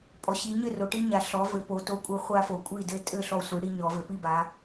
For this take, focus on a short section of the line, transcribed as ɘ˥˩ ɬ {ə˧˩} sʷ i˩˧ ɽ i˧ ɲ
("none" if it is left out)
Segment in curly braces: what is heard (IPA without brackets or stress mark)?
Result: ɔ˧˩